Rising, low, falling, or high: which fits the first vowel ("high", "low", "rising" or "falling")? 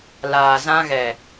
low